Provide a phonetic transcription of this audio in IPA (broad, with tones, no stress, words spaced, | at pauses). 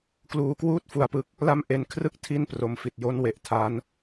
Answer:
kluː˧kwuː˥˩t̚fu˧a̯pɯ˦˥k̚ | la˦˥m ʔe˧nkʰrɯ˥˩k̚ tʰi˥˩npro˧mfi˨˩t̚ jo˦˥nwe˨˩ʔ tʰa˦˥n